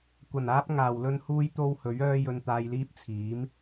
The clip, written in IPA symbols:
kʷ ɐ˨˩ n aː˥ p̚ ŋ aː˨ w l ɵ˥ n h uː˥ j t̪ o˥ w h ɵ˨˥ ɥ œː˥ j ɵ˧ n t̪ aː˧ j l iː˥ p̚ t͡sʰ iː˨˥ m

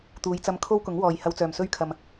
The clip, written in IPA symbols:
t̪ uː˨˧ j t͡s ɐ˧ m kʰ o˥ w k ʊ˨˥ ŋ w ɔː˨ j h ɐ˧ w t͡s œː˨ m s ɵ˥ ɥ kʰ ɐ˨ m

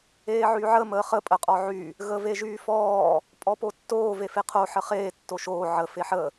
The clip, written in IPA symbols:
eː ʕ y ʕ ə m əː χ ə pʼ ə qʼ ɔ ʕ y | ɣ ə v e ʒ yː f ɔː | pʼ ɔ p o tː oː v e f e qʰ o ħ ə χ eː tː o ʃ oː ʕ ə f e ħ ə

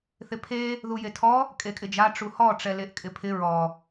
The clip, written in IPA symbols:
θ ɪ pʰ e | ð u j e tʰ ɔ | kʼ e kʼ ɪ d͡ʒ a ʈ͡ʂ u h ɔ ʈ͡ʂ ɛ l e ʔ kʼ ɪ pʰ ɪ ɹ ɔ

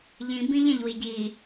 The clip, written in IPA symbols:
ʎ ĩ b ĩ ʎ æ̃ ʎ w i ɟ i

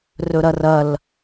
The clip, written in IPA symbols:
r ɵ ɾ ɐ r ɐ l

